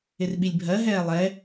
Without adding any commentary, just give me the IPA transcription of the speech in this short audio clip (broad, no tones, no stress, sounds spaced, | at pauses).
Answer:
ɪ r ɓ i lʲ bʱ ɜ ɦ ɛː lˠ ɛ